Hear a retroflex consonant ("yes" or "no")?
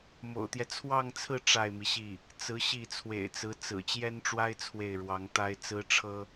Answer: yes